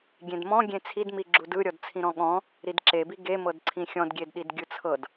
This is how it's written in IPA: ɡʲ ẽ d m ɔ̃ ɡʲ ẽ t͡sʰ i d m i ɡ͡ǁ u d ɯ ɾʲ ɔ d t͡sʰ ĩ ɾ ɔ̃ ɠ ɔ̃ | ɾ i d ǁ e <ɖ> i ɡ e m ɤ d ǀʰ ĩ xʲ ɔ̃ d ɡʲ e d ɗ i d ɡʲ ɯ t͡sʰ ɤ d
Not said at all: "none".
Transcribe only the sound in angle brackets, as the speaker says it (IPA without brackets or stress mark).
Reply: b